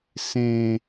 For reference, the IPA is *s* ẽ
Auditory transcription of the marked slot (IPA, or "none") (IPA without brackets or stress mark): s